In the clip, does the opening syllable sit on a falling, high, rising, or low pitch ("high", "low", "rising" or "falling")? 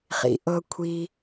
low